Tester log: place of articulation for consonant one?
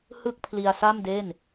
glottal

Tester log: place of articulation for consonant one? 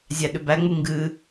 alveolar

